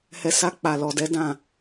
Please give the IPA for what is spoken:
h ɛ˨ s a˧ k͡p a˨ l ɔ˨ d ɛ˨˦ d ã˦˨

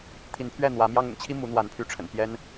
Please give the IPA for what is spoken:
t̪ʰ i˨˦ n pʰ ɥ ɛ˥˨ n̪ w ä˨˦ m j ɑ˦ ŋ ʊ̰˨˩ ŋ t͡ɕʰ i˦ m u˨˦ n̪ w a˨˦ n pʰ y˨˦ ʈ͡ʂʰ ə̰˨˩ n p j ɛ˦ n

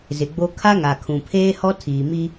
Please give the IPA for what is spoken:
z ɪ˨ ɡ͡b o˦ kʰ a˦ ŋ a˨ kʰ ũ˨ pʰ eː˦ h ɔ˦ tʰ iː˨ m i˦

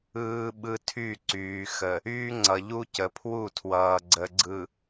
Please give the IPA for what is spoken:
ɯː˦ ɓ ɯ˦ tʰ y˦˨ ǀ yː˨ x ə˨ | yː˦ ŋ͡ǀ ʌ˨ ʎ u˦ c ə˨ pʰ w u˦˨ tʰ w ʌː˨ ɡ͡ǀ ə˨ ɡ͡ǀ ɯ˨

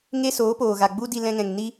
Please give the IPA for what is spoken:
ŋ e˦ s oː˨˦ p oː˨ ɣ a˨ ɡ͡b u˦ d i˧ l ɛ̃˧ ŋ ɛ̃˨ ŋ n i˦

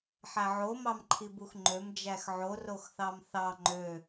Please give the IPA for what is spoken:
ħ æ ʕ o m ɑ m ǃʰ i b u x ŋ͡ǃ ø m d͡ʒ æ x ʕ o r o x θ ɑ m θ ɑ ŋ͡ǃ ø

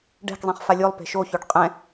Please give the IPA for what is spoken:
ɖ ɛ̤ k zˤ ĩ χ f a lʲ o lˠ p e̤ ʃ o ç o ɖ qʼ ɛ̃

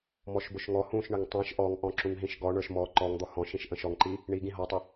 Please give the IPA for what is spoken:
m ɔ ʃ b ʊ ʃ ŋ ɔ h ũ ʃ ɳ ə ŋ tˤ ĩ ʃ ʔ ɔ ŋ ʔ ɔ̃ ǁ ũ ŋ ɦ ĩ ʃ ɡ ɔ ɳ ə˞ ʃ m ɔ ǃ ɔ ŋ d̪ ɔ h ɔ̃ ʃ ĩ ʃ ʔ ə̃ ʃ ɔ ŋ ǃ i | ɳ i ɡ ĩ ɦ ɔ tˤ ʊ

